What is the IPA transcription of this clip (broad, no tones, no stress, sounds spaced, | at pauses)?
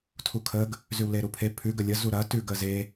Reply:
tʰ u kʰ ə ɡ | z ʉ w l e ɾ u pʰ e pʰ ʉ ɡ ə lʲ ə z u ɾ ɐ t ʉ ɡ ə z e